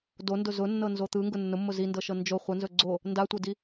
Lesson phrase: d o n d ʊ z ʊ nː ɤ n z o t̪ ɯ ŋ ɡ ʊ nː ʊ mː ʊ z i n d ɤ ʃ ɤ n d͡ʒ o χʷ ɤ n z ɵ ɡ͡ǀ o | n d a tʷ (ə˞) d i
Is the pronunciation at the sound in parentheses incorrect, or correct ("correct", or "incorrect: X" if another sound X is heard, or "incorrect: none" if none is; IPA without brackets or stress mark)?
incorrect: ɤ